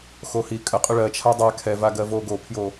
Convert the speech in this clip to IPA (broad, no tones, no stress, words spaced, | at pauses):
xohi kʼəqʼʏ ɭɜ t͡ʃʰadˤa kʰɛvaɡɜvo ɡopʰjo